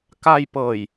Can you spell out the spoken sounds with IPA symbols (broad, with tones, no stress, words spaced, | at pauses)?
ka˧jpɤː˨˩j